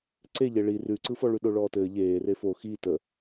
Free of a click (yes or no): no